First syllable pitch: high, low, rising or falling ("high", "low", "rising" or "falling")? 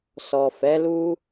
low